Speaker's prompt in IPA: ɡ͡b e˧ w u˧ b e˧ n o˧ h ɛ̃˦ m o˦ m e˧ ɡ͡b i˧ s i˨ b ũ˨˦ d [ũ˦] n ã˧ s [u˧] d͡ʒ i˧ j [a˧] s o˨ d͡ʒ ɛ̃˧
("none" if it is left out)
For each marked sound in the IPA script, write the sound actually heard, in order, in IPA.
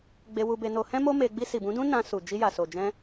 ũ˦, u˨, a˨

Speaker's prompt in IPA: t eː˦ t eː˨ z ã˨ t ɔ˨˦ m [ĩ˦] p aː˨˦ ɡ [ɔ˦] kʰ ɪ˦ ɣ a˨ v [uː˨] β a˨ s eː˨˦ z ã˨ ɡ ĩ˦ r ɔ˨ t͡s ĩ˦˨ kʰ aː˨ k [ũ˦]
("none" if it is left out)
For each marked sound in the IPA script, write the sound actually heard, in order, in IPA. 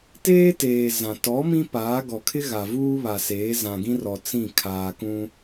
ĩ˦, ɔ˨, uː˦, ũ˦

